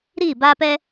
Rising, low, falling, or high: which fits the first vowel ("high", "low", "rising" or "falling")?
falling